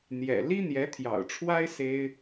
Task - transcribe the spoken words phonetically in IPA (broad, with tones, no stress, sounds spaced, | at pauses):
n̪ j ɛ̰˨˩ l i˥ n̪ j ɛ˧˥ t̪ʰ j ɑ̰˨˩ ʊ̯ ʈ͡ʂʰ w a˥ ɪ̯ s e˥ ɪ̯